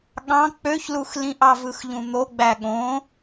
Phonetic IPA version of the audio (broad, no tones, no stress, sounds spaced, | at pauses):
ɠ ɑ̃ k͡p ø ç l u x l ĩ ʔ ɑ v ɯ x ʎ ũ n̪ o ɡ͡b æ ɠ õ